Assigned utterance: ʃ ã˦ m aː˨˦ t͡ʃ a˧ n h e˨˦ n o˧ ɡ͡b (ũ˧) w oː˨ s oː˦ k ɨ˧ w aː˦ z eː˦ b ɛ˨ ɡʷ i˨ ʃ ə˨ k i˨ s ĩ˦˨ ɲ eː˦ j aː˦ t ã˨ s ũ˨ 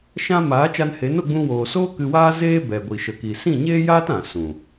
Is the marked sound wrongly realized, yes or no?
no